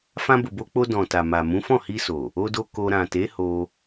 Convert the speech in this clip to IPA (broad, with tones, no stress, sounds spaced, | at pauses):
f ã˧ b o˨ b o˧ k͡p o˧ d ɔ̃˨ t a˨ m a˨ m ũ˨˦ f ɔ̃˦˨ h i˧ s o˨ | o˧ d o˧ k o˧ ɾ ã˨ t e˨˦ h o˧